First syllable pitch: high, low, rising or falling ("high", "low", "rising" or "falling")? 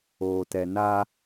low